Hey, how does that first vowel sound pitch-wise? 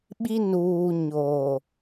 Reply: high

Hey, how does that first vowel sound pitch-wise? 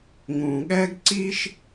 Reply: low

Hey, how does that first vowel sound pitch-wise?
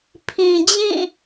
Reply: low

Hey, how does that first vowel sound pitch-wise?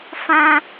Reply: high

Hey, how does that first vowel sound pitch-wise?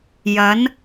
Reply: rising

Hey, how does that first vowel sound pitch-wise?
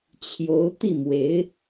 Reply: rising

